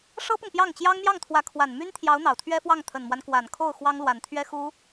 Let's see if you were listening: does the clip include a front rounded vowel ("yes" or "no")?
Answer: yes